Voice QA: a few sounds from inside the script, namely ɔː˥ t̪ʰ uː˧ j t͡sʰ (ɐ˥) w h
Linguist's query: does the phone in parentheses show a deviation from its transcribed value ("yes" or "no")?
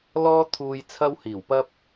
no